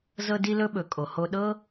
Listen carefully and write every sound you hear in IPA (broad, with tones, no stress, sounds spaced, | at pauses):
z ɤ˧ d i˧ l ɵ˧ ɓ ɵ˩ kʼ o˩ h o˧ ɗ ɤ˥